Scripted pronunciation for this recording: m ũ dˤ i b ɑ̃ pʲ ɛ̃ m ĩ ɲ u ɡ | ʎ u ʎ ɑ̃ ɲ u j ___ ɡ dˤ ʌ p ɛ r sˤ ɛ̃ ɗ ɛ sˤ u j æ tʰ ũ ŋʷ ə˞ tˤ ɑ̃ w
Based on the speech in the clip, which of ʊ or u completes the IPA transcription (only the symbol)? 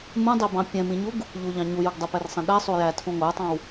u